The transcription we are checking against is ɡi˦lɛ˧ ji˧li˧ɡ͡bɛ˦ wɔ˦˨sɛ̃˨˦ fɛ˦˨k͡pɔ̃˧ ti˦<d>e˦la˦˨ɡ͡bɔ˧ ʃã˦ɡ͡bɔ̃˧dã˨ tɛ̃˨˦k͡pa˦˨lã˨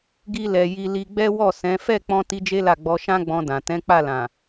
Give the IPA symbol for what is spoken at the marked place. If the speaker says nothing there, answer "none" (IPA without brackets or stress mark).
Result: d͡ʒ